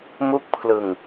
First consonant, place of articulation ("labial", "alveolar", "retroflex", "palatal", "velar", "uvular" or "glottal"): labial